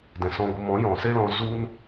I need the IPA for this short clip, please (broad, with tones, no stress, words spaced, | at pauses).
dɛ̃˨sɔ̃˧ɡʷə˧ mɔ̃˨˦ jɔ̃˨se˦lɔ̃˧ zu˦n